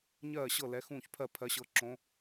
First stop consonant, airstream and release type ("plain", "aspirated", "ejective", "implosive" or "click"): aspirated